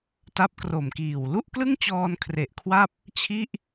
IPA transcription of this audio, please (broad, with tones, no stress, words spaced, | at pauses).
ta˦˥p̚kro˨˩mkiː˨˩w lu˥˩ʔklɯ˥˩ŋt͡ɕɔː˧n kʰre˨˩ʔkʰwa˥˩p̚ | t͡ɕʰi˥˩ʔ